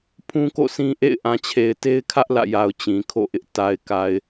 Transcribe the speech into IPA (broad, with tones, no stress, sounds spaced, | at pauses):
pʰ ũ˦ k o̰˦˨ s ĩ˦ ʔ ḛ˦˨ ɪ̯ ʔ ã˨ t͡ɕʰ e˨ ɪ̯ t e˦ ɪ̯ kʰ ä˦ ʔ l ä̰˦˨ j a˨ ʊ̯ t͡ɕ ĩ˨ kʰ o̰˦˨ ʔ ɪ˦ ʔ t a˨ ɪ̯ k a˨ ɪ̯